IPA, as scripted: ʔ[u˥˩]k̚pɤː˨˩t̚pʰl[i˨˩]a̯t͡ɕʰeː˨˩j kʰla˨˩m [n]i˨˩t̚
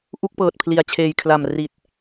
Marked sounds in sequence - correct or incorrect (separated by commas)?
correct, correct, incorrect